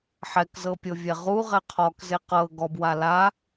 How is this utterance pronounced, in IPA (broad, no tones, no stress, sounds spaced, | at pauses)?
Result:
ħ ɛ k z ɤ pʲ ɤ vʲ ɛ ʁ u ʁ ɛ qʰ ɔ k z e q ɤ ɡ ɔ b w a l a